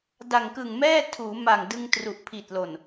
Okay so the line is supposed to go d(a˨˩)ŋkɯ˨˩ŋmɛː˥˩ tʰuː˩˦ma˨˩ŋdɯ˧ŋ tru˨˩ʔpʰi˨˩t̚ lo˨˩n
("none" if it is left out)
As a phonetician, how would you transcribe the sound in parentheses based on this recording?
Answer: a˨˩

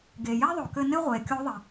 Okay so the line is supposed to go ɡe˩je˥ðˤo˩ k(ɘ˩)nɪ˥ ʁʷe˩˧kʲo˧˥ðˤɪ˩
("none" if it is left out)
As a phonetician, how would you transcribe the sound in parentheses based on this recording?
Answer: ɘ˧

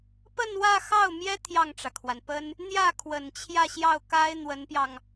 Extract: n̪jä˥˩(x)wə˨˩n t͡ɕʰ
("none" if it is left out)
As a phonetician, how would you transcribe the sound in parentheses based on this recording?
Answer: kʰ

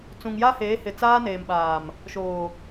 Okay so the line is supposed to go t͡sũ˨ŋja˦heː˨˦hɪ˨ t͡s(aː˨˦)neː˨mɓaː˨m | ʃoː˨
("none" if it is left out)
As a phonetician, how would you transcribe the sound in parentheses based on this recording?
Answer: aː˦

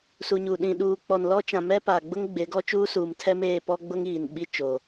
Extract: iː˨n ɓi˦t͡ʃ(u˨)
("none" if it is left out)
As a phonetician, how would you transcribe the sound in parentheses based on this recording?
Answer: o˨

